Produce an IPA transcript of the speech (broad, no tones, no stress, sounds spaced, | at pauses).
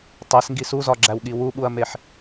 tˤ e s ŋ ɡ i s u z ɒ ɡ͡ǁ æ w ɠ i w u ɓ u ɐ̯ m e ħ